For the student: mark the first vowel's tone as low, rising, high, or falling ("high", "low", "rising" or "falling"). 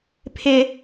high